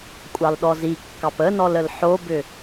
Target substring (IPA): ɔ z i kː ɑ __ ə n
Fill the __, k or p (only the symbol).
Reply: p